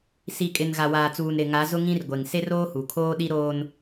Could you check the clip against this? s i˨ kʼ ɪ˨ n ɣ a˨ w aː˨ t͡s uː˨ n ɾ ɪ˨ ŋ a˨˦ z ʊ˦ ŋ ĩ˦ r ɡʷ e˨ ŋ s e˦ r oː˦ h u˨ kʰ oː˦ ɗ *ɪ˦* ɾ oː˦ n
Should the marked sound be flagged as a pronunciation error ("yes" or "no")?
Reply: yes